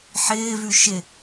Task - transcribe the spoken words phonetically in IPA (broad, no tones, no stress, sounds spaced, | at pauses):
ħ ɪː v ʉ ʃ ɪ